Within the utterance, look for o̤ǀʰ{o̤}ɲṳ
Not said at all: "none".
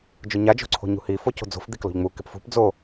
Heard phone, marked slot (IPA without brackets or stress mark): o̤